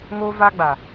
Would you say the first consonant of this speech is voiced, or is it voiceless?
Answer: voiced